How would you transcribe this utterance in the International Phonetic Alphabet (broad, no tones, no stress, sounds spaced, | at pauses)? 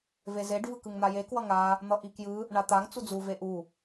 v e z e ɖ v ɯ k ɯ ŋ n̪ a j e k w ʌ ŋ a | n̪ ʌ ʔ i k j ɯ | ɳ a t̪ a ŋ t͡s u d͡z u v e ʔ u